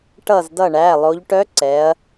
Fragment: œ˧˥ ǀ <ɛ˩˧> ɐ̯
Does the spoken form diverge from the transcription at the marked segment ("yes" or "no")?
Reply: no